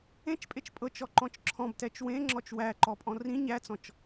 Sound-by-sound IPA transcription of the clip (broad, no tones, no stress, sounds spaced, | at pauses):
ẽ t͡ʃ pʼ e t͡ʃ pʼ ɤ t͡ʃ ɔ ǃ ɔ̃ t͡ʃ ǁʰ ɔ̃ b t ɛ t͡ʃ w ẽ ŋ͡ǁ ɔ t͡ʃ w æ ǃ ɔ pʼ ɔ̃ r ĩ ɲ æ t͡s ɔ̃ t͡ʃ